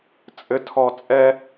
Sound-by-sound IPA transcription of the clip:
t͡sʼɘtʰɔ t͡sʼɛ

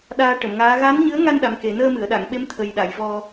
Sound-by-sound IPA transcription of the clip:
ɗaː˧ ʈə˨˩˨mŋaː˧˥ ɣa˧˥nɲɨ˧˥ə̯ŋa˧n ɗa˧˥mke˨˩˦ nəː˧mɨ˨˩˨ə̯ɗa˨˩˨ŋɓe˧˥m t̪ʰə˨˩jɗa˨˩˨jvɔ˧

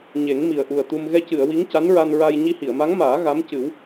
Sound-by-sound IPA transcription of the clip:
ɲe˨˩˦ŋmi˨˩ə̯ʔu˨˩ə̯t̪u˧m ɣɛ˧cɨ˨˩˨ə̯ wi˧˥ŋca˧˥nɹa˧nɹa˧j ɲi˧hi˨˩˨ə̯ma˧˥ŋmaː˨˩˦ ɣa˧˥mcɨ˨˩˦w

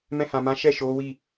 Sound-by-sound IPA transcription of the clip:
mɛ̃˧hã˨mã˨˦ ʃɛ˦˨ ʃo˨˦wi˦˨

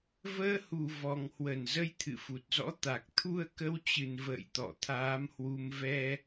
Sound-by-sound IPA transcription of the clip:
vəː˧hu˨˩ vɔ˨˩ŋhwə˧˩n zə˧jt̪ʰɨ̰˧˨fu˨˩t̚zɔ̰˧˥ t̪a˨˩k̚ t̪ʰu˧ə̯kə˧wt͡ɕɨ˨˩nvə̰ː˧˨j t̪ɔ̰˧˨t̪ʰaː˨˦mhwu˧m vɛ˧

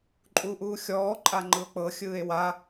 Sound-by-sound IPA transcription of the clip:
ǃʼuːʔuːxʲɔː ǃʼaŋ͡ǃɯo̯k͡pɤ xʲɯːe̯wa

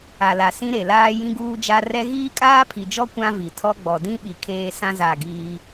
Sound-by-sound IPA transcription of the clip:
a˨la˨ sĩ˦ɾe˨laː˦ jĩ˦ɡuː˦d͡ʒa˦ rɛ˦ ɣiː˦kʼaː˦pʰi˨d͡ʒɔ˦ kʷã˦vi˨tʰɔ˦ ɡ͡bɔ˨dĩ˦ ɓi˨kʰeː˦ sã˦ za˦˨ɡiː˦

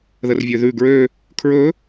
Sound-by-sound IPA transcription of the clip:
ðərvʲøðʉ ɡɹø | kʰɹɵ

